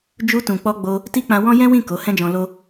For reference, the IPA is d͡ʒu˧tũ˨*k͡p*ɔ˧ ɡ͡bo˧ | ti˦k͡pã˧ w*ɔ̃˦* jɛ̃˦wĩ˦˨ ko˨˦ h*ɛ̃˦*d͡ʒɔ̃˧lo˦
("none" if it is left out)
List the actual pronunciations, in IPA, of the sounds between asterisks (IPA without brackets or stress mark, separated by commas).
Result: k͡p, ɔ̃˦, ɛ̃˦